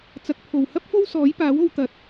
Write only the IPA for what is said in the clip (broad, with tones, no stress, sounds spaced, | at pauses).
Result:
t͡s ɐ˧ k̚ pʰ o˨ w h ɐ˥ p̚ f o˥ w s ɔː˨˥ j p aː˨˥ w o˧ w t̪ ɐ˨˥ t̚